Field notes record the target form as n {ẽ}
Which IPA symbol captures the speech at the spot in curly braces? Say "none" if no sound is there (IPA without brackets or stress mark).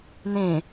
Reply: ẽ